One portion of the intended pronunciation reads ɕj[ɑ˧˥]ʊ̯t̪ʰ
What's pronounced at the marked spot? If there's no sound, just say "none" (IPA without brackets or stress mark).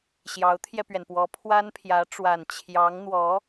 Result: ɑ˧˥